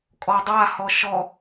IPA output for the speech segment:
kʼ ɔ dˤ a h ɔ ʃ ɔ

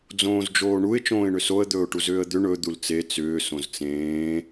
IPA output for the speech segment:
d͡z õː z d͡ʒ oː ɳ u ɪ̯ t͡ʃ õː ɪ̯ ɳ ʏ s o ə̯ d̪ ɵː ʊ̯ ʈ u z ʏː ə̯ d̪ ʏ ɳ ɵ d̪ u l t͡s e t͡s ʏː s õ z t͡s ẽː

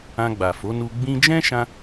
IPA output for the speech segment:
ã˧ ɡ͡b a˨ f o˨˦ n u˧ ɡ͡b ĩ˧ d͡ʒ ɛ̃˦ ʃ ã˧

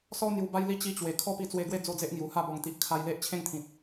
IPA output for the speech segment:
s ɔ˦ n̪ j u˧ b a˦ j l i˦ t͡ɕ i˧ t͡ɕ w e˨˩ kʰ ɔ˦ p i˧ t͡s w e˧ ɡ w e˥˧ d͡z o˥˧ d͡z e˦ ʔ ŋ j u˨˩ h a˥˧ b ɔ˨˩ ŋ t̪ i˨ ʔ kʰ a˧ j l e˦ ʔ t͡ɕʰ ẽ˥˧ ŋ t̪ʰ ĩ˨ t̚

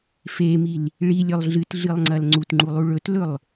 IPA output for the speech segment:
f e m i l | ɭ i lʲ ɵ lˠ ɮ ɨ t ɮ ɨ lˠ ŋ͡ǀ ɐ l ŋ͡ǀ u t ŋ͡ǃ u lˠ u ɭ ɵ t l ɵ lˠ

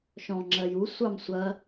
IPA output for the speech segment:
ʃ ɔ̃ ŋ͡ǁ ɜ j u sʷ ɑ m sʷ ɐ

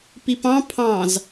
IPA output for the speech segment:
p i p ɑ̃ pʰ ɑ̃ z

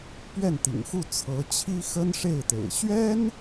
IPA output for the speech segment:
p ɥ ɛ˥˩ n t̪ ḭ˨˩ ŋ x u˥˩ t͡sʰ ɤ˧˥ t͡ɕʰ i˥ x ə˥ n ʂ e˥˩ ɪ̯ t̪ ḛ˨˩ ɪ̯ ɕ ɥ ɛ˥ n

